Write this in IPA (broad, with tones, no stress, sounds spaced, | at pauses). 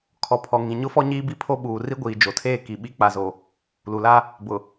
kʰ ɔ˨ pʰ ɔ˨ ŋ ĩ˨ ɲ ʊ˦ f ɔ˦ ɲ iː˦ b i˦˨ pʰ o˦ ɓ uː˨ r i˦ ɡʷ iː˨ d͡ʒ o˨ tʰ eː˦˨ k i˨ ɓ i˦ k͡p a˨ z o˨ | l u˨ l a˦ | b ʊ˨